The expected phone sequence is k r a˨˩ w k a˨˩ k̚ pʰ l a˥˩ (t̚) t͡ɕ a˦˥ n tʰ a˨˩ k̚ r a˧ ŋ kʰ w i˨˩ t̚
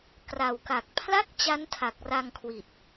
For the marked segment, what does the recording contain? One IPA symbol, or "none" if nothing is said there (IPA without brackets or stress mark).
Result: k̚